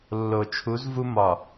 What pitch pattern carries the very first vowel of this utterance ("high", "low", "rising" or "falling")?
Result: low